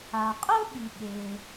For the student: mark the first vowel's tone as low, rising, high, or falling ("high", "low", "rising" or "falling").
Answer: low